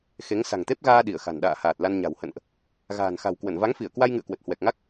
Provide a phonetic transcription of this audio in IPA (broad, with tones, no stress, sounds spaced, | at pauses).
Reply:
x e˨˦ ŋ s a̤˨˩ ŋ t̪ e˦˥ p̚ ɣ aː˧ ɗ i˧˩ ə̯ x a̤˨˩ n ɗ a̰ː˧˨ h aː˨˩ t̚ l a˧ n ɲ a̤˨˩ w h ə̰˧˨ n ʔ | ɣ a̤ː˨˩ n x a̤˨˩ w k w ə˧˩ n v a˨˦ ŋ f i˧˩ ə̯ k w a˧ j ŋ ɨ̰˧˨ ə̯ k w ə˨˩ t̚ h w ɛ˨˩ k̚ ŋ a˦˥ k̚